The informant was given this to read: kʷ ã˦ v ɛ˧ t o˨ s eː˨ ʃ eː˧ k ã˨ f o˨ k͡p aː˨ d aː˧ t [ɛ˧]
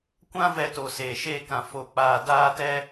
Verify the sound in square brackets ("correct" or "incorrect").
correct